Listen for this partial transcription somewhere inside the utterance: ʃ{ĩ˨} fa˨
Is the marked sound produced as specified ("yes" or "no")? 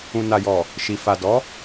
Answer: no